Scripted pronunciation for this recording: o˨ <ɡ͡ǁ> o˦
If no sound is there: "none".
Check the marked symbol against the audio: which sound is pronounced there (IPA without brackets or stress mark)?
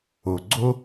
ɡ͡ǀ